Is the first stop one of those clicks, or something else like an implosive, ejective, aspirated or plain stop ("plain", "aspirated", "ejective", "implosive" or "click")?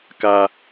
plain